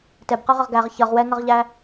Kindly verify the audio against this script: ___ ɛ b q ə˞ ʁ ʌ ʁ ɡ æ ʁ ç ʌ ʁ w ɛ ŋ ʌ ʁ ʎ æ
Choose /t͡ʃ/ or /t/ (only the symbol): t